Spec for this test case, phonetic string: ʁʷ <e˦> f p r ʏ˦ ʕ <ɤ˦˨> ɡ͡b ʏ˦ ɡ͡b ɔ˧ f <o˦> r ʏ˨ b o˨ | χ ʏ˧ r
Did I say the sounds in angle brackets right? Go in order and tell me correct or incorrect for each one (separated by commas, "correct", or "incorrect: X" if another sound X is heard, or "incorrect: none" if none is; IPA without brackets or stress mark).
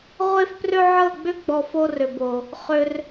correct, correct, correct